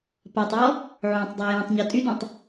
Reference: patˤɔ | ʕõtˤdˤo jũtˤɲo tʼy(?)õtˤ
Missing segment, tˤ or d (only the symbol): d